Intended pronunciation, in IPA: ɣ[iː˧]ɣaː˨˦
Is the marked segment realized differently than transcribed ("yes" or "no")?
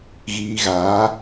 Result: no